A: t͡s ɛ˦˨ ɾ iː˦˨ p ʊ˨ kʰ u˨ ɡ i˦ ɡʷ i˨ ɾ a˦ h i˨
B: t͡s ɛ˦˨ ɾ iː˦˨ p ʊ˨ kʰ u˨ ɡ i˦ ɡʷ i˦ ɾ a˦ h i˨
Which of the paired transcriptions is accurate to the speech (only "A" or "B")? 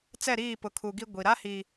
A